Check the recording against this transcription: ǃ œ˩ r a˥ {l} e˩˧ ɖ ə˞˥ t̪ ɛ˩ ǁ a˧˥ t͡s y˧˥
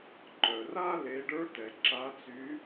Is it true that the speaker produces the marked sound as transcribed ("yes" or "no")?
yes